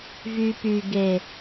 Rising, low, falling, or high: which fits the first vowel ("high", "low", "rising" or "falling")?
high